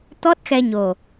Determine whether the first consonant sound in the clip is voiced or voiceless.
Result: voiceless